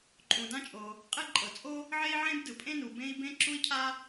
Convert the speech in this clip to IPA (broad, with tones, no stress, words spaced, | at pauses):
ǃʼũ˩dã˥t͡ʃʼo˩ | qʼe˥ ǃʼɤ˩t͡sʼo˥ | ʕe˥i̯ʕẽ˥b dɯ˩pʼẽ˥nu˩ bẽ˥i̯ bẽ˥ ǁu˥i̯cʰa˥